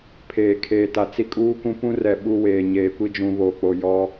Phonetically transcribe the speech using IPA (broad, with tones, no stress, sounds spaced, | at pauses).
pʰ eː˨ kʰ eː˨ t a˨ t͡s i˦ kʼ uː˦ k ũ˦ p ũ˦ r ɛ˨ ɓ uː˦ w eː˨ ɲ eː˨ kʷ i˦ d͡ʒ ũ˨ β o˨ k͡p o˨ j ɔ˦